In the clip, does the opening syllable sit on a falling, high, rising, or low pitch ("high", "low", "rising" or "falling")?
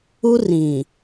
high